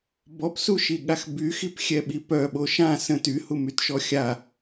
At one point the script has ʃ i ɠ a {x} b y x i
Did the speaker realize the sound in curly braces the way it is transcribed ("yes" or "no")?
yes